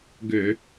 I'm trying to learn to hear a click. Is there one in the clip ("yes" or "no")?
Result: no